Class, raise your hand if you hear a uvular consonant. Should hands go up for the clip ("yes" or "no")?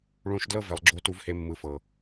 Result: no